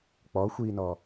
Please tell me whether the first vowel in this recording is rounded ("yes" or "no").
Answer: yes